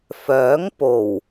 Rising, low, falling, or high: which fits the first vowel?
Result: rising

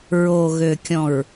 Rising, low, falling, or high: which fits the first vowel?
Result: low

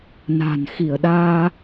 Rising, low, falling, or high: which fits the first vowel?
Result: low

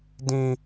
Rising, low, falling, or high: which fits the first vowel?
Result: high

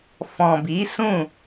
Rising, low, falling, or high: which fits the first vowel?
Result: low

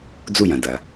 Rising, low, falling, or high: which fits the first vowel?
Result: falling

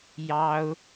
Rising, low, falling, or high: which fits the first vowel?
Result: high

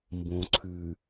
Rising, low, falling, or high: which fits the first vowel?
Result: low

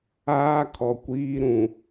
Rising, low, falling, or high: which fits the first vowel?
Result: high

